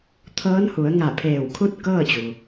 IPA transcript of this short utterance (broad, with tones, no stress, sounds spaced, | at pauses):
t̪ʰ ɤː˧˥ n h u˩˧ ə̯ ŋ a˧˩ pʰ eː˧˩ w kʰ u˥˨ t̚ k ɤː˥˨ t͡ɕ u˩